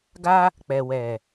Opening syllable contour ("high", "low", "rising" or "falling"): high